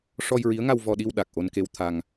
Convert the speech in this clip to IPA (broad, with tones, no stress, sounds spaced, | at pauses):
ʂ ɔ˧ j ɹ i˧˥ ə̯ ŋ a˧ w v ɔ˧ ɗ i˧ w ɗ a˨˩ k̚ ʔ o˧ n k e˧ w t̪ʰ a˧ ŋ